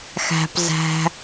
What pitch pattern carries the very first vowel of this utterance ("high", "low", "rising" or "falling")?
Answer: low